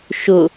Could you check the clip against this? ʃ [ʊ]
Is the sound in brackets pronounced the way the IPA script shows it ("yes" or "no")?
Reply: yes